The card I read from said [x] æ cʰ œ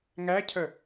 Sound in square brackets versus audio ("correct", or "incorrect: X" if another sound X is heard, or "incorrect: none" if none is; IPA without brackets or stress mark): incorrect: ŋ